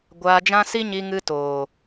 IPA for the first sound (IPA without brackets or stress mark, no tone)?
ɡʷ